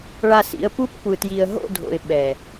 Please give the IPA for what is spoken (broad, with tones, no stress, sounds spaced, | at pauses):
ɭ a˨ s ḭ˨ ə̯ p u˦ p kʷ ɯ˨ t j i˨ ə̯ ɦ o̰˦˨ dʱ o̰˨ ɪ̯ ɓ ɛ˨